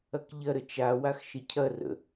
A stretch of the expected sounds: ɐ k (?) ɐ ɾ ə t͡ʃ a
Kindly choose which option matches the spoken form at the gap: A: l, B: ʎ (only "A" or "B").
B